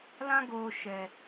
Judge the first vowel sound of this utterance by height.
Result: low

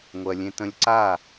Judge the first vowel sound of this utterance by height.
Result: mid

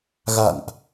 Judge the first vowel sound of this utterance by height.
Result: low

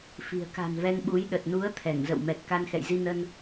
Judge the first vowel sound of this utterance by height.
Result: high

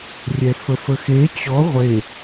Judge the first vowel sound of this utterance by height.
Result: mid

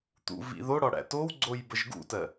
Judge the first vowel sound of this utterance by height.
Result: high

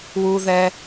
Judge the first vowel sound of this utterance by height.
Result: high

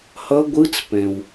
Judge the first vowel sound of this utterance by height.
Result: mid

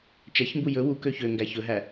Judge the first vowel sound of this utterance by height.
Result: low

